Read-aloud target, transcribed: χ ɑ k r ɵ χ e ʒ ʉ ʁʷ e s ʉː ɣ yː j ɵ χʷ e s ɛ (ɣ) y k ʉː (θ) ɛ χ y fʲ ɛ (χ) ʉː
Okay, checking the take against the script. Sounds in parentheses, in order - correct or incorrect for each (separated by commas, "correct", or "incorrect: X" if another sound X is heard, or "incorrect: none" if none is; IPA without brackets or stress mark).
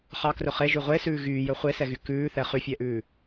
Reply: correct, correct, incorrect: ʔ